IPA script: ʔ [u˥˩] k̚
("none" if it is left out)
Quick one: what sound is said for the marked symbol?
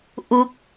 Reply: u˦˥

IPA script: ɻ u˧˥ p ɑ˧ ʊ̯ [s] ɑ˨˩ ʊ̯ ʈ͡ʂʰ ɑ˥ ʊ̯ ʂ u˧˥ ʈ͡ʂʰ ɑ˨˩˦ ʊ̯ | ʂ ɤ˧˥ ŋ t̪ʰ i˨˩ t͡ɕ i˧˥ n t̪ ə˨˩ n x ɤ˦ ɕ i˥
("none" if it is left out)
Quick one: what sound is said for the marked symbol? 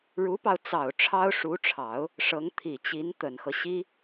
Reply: t͡s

